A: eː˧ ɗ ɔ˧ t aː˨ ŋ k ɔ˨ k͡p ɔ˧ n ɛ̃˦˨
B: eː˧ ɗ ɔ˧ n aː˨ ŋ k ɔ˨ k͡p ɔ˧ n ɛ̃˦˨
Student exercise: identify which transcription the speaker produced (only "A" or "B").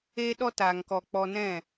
A